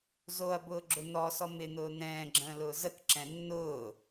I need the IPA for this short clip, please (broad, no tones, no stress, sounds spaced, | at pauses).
z o ɐ̯ b ʊː ɡ͡ǁ ʊ n̪ ɔ s ɔ m ɪ n̪ ʊː n̪ ɛ̃ː ɡ͡ǁ ə̃ː l ʊː z ə k ǁ ɛ̃ nː ʊː